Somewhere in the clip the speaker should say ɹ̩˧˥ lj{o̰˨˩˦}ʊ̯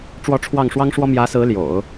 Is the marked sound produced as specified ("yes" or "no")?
yes